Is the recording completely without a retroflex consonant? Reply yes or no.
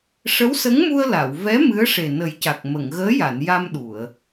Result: no